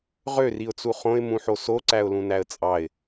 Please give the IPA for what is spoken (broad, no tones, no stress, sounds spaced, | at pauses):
ʁ ø r i ʊ̯ t͡s u χ õ ɪ̯ m ũ ħ o s o ǀ æ ʊ̯ l ũ n æ ə̯ t͡sʼ ɑ ɪ̯